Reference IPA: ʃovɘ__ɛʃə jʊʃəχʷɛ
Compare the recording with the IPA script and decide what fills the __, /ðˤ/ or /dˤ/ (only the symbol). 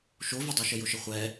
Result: dˤ